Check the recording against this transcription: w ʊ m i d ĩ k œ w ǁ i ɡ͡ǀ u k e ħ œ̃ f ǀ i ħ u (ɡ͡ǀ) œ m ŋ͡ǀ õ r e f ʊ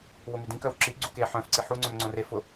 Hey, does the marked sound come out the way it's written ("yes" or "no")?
no